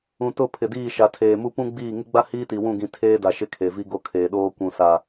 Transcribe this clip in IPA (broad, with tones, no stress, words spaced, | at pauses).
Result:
ũ˨tʊ˦˨pʰɪ˨diː˦˨ ʃa˨tʰeː˨mu˦ pũ˦ɡ͡biː˦˨ ŋɪ˦ɡ͡ba˦ hiː˦ti˨wũ˦˨ɡĩ˨ tʰeː˦da˨ ʃɪ˦kʰe˨vi˦ ɡo˦kʰeː˨ɗoː˦ kʷũ˨sa˨